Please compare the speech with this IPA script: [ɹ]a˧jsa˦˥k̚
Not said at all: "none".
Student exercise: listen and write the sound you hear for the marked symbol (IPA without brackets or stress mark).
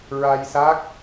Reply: ɹ